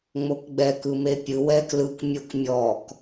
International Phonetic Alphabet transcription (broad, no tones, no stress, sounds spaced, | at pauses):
ŋ͡m o k ɡ͡b ɛ k ɯ m e pʲ ɯ w ɛ k l ɯ k mʲ o k mʲ ɔ k